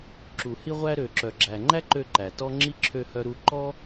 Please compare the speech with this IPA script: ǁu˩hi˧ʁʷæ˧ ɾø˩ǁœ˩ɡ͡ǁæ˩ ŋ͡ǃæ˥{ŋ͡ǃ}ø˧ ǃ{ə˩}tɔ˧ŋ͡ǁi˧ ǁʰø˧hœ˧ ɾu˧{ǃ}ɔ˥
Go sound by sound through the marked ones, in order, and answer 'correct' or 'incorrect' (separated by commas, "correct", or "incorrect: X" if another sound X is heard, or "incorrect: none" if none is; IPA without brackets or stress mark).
incorrect: ǃ, incorrect: æ˩, correct